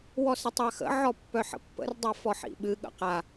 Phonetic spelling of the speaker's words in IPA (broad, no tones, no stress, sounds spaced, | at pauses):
w ɔ s ə tˤ a x ə̰ ʕ ɔ pː œ ħ ə̰ pː ə̰ r dˤ a f ɔ ħ ḭ ɓ ɨ ɠ ə̰ q a